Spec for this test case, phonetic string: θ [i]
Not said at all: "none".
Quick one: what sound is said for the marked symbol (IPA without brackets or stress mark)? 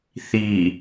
i